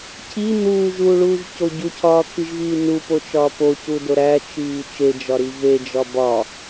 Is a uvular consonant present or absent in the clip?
absent